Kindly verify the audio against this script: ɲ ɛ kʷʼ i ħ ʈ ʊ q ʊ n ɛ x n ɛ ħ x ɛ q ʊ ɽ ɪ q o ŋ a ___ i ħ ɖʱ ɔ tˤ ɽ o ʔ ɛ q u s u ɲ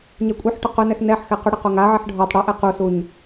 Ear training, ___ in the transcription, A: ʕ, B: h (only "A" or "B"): A